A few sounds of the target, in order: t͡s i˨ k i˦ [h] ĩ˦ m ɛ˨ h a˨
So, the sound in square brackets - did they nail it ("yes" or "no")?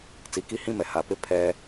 yes